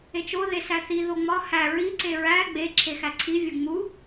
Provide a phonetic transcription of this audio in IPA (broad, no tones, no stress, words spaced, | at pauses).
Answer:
et͡ʃo ðesæθi ðoŋ͡mɒ hæ ɹi ǀeɹæ ɡ͡be ǁʰexæǀʰi vʲoŋ͡mu